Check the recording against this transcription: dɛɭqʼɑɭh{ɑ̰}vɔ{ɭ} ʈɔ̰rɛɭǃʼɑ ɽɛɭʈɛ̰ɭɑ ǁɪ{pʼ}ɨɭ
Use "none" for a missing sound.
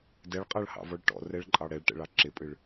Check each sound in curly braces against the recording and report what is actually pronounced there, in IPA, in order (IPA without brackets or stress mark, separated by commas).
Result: ɑ̰, ɭ, pʼ